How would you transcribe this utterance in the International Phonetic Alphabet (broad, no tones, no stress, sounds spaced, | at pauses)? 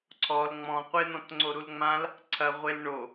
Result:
ǀʰ ɔ l ŋ͡m ɔ̃ qʷ e n̪ ɔ̃ t ŋ͡ǀ o ɾ u l ŋ͡m ã l | ǀʰ ɐ ʁʷ e l ɳ o